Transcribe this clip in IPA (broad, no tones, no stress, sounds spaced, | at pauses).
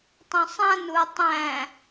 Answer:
tˤ õ sˤ ã n u ɐ̯ tˤ æ̃